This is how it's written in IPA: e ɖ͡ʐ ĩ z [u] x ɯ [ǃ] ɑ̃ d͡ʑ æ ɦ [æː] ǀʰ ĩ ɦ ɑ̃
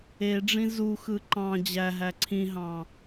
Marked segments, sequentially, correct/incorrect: correct, correct, incorrect: æ

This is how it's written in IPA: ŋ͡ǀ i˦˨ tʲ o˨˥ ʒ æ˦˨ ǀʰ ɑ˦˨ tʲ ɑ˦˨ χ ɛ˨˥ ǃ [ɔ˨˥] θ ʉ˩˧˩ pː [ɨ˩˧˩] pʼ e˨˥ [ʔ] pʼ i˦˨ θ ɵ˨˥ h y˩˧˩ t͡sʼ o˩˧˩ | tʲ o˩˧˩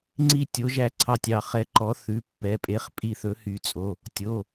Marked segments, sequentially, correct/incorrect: correct, incorrect: ɛ˩˧˩, incorrect: χ

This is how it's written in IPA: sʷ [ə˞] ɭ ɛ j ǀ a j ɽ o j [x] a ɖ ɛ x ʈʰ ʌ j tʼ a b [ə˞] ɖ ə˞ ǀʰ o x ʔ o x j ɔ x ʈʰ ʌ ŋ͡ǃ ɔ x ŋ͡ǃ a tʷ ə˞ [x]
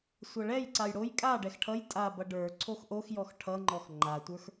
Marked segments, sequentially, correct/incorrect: incorrect: ʌ, incorrect: kʼ, incorrect: ʌ, correct

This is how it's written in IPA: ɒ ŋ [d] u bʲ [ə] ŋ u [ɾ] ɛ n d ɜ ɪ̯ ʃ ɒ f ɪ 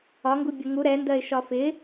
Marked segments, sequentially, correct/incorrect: incorrect: ɡ, correct, correct

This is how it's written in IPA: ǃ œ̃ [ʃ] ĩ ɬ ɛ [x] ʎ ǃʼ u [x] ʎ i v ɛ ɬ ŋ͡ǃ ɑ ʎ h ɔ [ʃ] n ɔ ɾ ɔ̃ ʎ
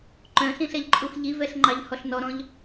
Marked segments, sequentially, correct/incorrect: incorrect: ɬ, incorrect: none, correct, incorrect: ɬ

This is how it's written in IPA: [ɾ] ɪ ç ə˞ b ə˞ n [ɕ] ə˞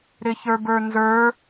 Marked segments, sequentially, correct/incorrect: correct, incorrect: z

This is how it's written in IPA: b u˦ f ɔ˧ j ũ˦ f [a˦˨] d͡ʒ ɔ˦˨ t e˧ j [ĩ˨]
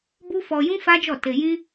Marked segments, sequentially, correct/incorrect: incorrect: a˦, incorrect: ĩ˦

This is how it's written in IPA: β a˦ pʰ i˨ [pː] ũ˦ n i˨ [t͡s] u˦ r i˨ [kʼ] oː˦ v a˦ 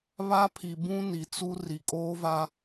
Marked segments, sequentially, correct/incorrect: incorrect: b, correct, correct

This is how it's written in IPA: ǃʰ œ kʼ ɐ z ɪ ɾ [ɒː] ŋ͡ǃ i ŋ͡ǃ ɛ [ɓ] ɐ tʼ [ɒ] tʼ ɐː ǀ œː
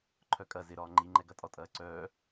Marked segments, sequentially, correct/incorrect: correct, incorrect: ɡ, correct

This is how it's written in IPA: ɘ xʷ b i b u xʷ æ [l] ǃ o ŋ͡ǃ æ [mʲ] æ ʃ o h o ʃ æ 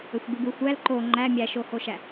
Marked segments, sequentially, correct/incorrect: correct, correct

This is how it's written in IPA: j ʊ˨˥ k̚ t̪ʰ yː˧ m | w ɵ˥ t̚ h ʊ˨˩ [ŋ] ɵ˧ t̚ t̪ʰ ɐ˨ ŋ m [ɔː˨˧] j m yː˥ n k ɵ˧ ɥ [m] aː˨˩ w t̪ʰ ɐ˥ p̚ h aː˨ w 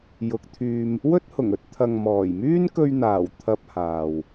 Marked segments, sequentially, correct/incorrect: correct, incorrect: ɔː˨˩, incorrect: n̪

